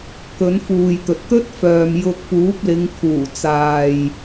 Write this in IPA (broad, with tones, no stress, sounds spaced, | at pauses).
k ɵ˨˥ n f uː˨ j t̪ ɵ˨ t̚ t̪ ɵ˥ t̚ f œː˨ m j ʊ˧ k̚ p uː˨˥ p̚ l ɪ˨˧ ŋ kʰ uː˨˩ t͡s aː˨ j